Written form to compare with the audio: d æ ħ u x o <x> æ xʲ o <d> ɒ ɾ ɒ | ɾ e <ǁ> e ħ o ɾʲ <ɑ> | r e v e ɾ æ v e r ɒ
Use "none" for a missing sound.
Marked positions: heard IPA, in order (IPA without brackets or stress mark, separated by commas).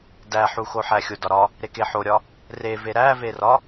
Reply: ħ, d, k, ɒ